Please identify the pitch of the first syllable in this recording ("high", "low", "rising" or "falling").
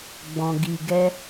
low